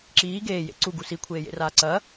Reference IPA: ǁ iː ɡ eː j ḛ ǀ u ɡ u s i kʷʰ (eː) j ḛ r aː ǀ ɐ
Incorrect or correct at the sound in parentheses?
correct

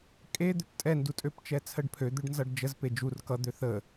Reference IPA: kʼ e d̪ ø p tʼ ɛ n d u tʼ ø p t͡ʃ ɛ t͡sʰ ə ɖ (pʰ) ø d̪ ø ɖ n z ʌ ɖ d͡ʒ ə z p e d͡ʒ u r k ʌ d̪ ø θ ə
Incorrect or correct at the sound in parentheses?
correct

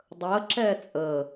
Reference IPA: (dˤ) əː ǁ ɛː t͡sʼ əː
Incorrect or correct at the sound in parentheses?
correct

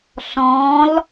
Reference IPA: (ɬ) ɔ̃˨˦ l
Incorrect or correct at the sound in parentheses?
correct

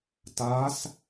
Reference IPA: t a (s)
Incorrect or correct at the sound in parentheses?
correct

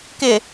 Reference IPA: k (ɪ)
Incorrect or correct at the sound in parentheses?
correct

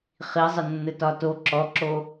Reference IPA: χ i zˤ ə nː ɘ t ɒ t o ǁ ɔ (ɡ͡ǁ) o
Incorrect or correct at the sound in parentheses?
incorrect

